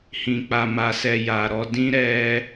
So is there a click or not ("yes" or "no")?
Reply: no